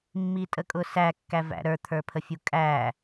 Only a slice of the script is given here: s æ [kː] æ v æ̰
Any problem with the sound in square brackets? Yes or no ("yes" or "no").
no